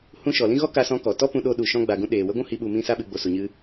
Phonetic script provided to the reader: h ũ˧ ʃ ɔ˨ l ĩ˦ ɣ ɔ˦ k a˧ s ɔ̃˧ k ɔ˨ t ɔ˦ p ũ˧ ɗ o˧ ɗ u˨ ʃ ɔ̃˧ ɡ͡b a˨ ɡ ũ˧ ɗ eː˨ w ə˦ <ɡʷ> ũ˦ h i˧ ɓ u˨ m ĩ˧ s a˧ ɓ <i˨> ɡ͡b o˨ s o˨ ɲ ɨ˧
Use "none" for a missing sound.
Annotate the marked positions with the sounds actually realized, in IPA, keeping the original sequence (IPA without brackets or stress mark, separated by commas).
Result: ɡʷ, ɨ˨